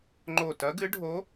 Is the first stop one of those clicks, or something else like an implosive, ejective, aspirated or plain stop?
click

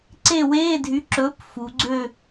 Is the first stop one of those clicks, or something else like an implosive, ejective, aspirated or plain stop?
click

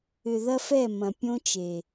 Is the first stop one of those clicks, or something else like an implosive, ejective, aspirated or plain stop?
plain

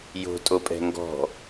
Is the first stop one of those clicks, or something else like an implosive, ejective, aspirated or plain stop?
ejective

